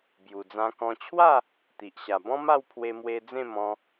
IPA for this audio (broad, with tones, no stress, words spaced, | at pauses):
bju˨˩d͡zã˧kɔ̃˧ t͡ɕʰwa˥˧ | t̪i˨ʔɕa˨˩bɔ̃˦ ma˥˧wpʰwe˧mwe˧ d͡zẽ˥˧mɔ̃˧